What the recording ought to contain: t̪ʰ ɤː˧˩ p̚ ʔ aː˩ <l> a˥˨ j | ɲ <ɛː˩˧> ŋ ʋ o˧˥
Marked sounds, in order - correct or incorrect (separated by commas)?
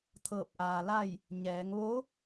correct, correct